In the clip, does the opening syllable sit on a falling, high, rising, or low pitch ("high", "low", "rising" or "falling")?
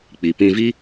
low